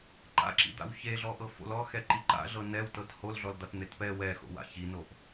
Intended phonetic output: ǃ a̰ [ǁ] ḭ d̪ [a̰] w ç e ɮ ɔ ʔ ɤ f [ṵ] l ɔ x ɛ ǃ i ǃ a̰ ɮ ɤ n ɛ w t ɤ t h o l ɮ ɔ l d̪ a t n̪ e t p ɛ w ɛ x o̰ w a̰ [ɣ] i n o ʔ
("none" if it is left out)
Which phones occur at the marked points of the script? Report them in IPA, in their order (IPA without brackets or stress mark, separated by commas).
ǁ, a̰, o̰, ç